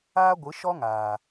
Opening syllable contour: high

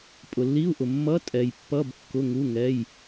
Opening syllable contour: low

